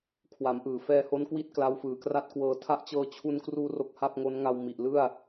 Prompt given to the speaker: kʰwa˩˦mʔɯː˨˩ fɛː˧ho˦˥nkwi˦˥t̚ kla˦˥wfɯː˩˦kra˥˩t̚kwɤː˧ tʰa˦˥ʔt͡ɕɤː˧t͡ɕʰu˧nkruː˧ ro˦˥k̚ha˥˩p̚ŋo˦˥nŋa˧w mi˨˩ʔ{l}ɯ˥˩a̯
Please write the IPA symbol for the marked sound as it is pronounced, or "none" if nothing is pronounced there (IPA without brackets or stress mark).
l